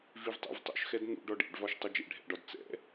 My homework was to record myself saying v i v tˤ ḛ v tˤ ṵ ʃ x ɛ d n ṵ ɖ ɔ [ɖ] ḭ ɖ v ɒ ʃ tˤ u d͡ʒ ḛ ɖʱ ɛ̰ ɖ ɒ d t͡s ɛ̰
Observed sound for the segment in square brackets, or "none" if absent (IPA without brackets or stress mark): ɖ